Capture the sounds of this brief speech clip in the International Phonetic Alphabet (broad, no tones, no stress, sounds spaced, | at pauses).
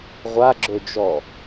ʁʷ a ɡ͡ǁ ø d͡ʒ ɔ